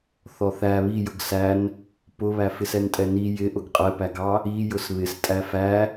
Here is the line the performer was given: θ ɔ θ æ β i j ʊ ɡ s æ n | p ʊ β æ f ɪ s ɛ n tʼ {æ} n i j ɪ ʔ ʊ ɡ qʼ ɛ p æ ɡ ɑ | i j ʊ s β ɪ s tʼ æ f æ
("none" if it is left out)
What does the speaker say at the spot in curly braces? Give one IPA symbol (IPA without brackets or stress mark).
ɛ